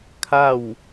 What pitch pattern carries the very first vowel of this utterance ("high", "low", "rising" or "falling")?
falling